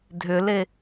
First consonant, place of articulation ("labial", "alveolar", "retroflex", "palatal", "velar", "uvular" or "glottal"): alveolar